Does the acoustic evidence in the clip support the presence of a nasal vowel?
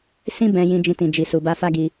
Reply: yes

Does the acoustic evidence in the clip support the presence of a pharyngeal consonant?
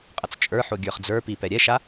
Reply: yes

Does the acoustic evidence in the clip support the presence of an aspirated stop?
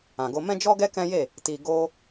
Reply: no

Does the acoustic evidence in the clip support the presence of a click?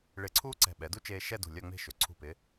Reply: yes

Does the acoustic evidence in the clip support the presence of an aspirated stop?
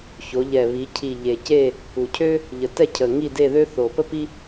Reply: yes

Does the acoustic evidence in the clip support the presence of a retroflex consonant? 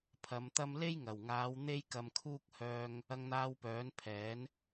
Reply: no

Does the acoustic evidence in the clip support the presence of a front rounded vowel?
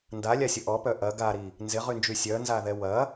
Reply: yes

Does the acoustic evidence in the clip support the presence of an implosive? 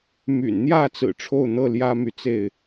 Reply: no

